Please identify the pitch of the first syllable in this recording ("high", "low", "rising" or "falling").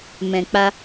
low